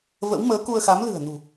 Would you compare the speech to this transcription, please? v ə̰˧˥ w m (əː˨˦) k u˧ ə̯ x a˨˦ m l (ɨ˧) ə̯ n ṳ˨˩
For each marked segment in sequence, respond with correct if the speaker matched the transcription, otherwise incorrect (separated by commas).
correct, incorrect